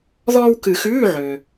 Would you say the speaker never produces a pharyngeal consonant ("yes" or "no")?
no